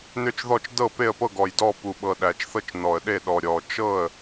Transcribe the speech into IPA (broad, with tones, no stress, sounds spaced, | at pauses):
n ʏ˥˩ t͡ʃ ð ɔ˥˩ t͡ʃ d ɤ˥˩ p e˥˩ ə̯ p ɤ˥˩ ɡ ɔ˨˩ j d ɔ˥˩ p u˨˩ ɓ ɤ˨˩ ɗ æ˨˩ t͡ʃ θ ɤ˥˩ t͡ʃ n ɔ˨˩ ə̯ ɗ e˥˩ ɗ ɔ˨˩ ɾʲ ɔ˨˩ t͡ʃ ɤ˥˩ ə̯